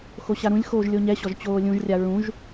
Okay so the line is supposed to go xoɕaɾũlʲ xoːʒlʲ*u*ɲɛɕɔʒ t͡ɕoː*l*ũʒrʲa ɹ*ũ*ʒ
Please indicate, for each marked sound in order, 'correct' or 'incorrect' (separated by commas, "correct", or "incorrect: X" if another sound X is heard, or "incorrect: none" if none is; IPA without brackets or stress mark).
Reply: incorrect: o, incorrect: lʲ, correct